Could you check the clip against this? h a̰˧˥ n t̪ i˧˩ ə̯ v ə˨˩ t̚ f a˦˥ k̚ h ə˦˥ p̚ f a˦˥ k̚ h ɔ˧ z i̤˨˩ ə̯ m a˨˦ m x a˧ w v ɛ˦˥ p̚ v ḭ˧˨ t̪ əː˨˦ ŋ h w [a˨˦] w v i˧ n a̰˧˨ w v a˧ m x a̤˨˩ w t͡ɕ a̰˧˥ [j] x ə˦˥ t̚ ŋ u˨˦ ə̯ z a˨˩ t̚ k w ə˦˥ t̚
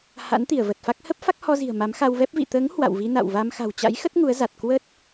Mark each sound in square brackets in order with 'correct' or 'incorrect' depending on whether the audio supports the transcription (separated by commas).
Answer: incorrect, correct